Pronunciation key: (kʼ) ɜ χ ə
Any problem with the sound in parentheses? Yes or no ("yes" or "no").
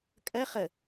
no